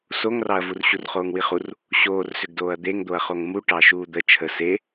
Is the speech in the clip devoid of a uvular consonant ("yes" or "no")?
no